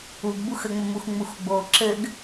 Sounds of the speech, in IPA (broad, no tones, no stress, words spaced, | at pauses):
uɡbux əŋ͡mɘ muxŋ͡muxɡ͡bo ǁɘɡ